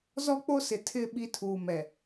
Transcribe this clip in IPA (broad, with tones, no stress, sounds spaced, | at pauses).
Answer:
z ɔ˦ k͡p o˦ s ɪ˨ tʰ ɪ˦˨ ɓ i˦ tʰ uː˨ m ɛ˨